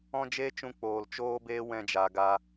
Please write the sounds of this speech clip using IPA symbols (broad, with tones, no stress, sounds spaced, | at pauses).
ɔ̃˦ d͡ʒ eː˦ t͡ʃ ũ˧ k͡p oː˨ l t͡ʃ oː˦ b eː˦ w ɛ̃˧ d͡ʒ a˨ ɡ a˧